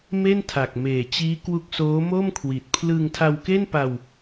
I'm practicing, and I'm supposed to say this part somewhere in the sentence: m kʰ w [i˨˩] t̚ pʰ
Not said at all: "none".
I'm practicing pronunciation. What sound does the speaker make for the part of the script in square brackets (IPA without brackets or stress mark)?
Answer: i˨˩